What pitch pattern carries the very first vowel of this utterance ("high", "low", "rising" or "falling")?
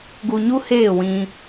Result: low